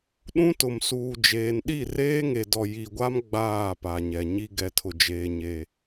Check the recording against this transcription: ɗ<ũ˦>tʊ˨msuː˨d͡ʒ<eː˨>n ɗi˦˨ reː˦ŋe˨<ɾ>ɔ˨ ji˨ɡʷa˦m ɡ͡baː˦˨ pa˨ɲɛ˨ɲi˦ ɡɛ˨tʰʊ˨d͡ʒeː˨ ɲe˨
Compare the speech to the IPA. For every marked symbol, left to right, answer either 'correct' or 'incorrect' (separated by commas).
correct, correct, incorrect